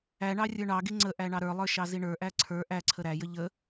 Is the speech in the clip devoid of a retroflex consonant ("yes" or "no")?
no